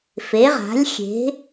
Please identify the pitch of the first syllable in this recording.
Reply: rising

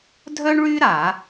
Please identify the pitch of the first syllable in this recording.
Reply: high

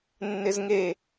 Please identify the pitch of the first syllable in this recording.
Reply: high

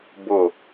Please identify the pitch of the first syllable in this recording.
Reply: falling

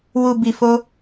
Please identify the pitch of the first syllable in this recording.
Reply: low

